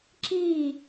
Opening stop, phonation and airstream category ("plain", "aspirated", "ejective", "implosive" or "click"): click